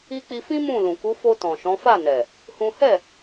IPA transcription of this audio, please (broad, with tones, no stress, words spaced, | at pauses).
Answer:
i˦ k͡pi˧fĩ˦ mũ˦˨lũ˨ ku˨˦fo˧ tɔ̃˨ʃɔ̃˨˦fa˦˨nɛ˨ | hũ˦ hɛ˦˨